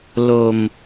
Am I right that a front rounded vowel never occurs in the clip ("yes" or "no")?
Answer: yes